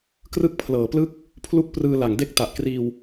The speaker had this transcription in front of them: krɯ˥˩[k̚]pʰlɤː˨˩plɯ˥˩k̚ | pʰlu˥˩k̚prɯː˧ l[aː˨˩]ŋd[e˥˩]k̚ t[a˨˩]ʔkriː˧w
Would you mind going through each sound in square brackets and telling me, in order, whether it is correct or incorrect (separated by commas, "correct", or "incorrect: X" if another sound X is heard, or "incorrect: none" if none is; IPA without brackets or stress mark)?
correct, incorrect: a˨˩, correct, correct